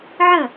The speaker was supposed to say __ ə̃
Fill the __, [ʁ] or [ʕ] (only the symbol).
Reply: ʕ